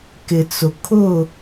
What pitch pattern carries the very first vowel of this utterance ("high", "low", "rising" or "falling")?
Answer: low